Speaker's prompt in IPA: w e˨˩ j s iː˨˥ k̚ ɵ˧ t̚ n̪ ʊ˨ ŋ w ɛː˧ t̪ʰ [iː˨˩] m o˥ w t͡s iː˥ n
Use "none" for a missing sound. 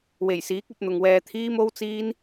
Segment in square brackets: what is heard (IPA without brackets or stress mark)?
iː˥